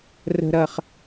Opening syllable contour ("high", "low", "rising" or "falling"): high